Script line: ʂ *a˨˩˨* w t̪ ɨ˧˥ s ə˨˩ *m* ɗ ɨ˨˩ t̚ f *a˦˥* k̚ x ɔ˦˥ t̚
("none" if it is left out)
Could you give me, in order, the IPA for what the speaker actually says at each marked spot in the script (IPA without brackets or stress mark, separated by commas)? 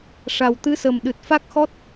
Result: a˨˩, m, a˦˥